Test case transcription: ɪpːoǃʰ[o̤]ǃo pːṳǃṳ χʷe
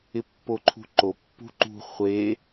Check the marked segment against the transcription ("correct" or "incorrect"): incorrect